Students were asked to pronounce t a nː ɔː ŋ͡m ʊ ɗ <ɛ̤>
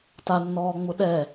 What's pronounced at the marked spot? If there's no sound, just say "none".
ɛ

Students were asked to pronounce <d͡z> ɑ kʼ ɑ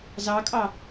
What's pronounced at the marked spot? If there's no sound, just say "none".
z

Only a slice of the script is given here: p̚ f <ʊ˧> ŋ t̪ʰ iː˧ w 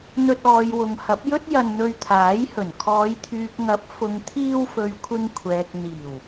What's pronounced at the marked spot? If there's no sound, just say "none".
ʊ˨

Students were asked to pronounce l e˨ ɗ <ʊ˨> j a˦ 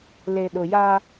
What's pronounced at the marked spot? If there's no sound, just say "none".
ʊ˨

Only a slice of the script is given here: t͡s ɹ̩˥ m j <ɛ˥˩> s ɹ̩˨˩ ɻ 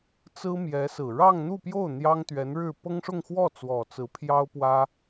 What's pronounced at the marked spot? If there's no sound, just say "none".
ɛ˧˥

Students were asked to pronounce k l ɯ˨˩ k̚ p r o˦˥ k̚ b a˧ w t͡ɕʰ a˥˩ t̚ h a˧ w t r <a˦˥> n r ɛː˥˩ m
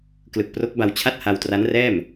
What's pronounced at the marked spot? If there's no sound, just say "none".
a˦˥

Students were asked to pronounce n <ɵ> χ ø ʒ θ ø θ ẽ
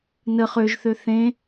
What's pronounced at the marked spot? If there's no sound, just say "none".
ə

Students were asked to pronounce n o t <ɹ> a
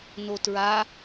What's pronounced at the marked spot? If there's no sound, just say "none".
ɹ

